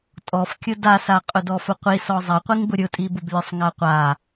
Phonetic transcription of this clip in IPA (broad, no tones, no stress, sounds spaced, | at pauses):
tʼ ɔ f kʲ ʊ d a s a qʼ ʊ d ɔ f ʊ qʷ i s ɔ zˤ a qʷ i ŋ b ʊ ɾʲ ʊ tʼ i b ʊ b lʲ ʊ sˤ ŋ a qʷ a